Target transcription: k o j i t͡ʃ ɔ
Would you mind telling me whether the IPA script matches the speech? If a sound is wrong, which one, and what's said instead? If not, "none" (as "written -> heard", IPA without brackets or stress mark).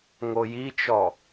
k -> ŋ